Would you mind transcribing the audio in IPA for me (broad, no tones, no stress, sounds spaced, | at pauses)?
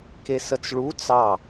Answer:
k e s ə t͡s ɭ u t͡s ɑ